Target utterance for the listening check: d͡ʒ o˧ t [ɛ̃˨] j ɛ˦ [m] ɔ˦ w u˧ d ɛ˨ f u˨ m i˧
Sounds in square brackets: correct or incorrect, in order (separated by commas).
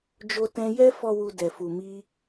incorrect, incorrect